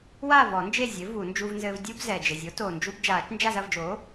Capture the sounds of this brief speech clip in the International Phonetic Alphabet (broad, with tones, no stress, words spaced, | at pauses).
wa˥˨ vɔ˨˩˦nd͡ʒe˥˨zʲɘ˩˥ vu˨˩˦nd͡ʒuː˦vnzɘː˦v dʲu˦bzɛ˨˩ d͡ʒɘ˨˩zʲo˩˥toː˨˩nd͡ʒu˦b d͡ʒaː˨˩˦t͡ʃnd͡ʒa˥˨zɐ˥˨vd͡ʒoː˩˥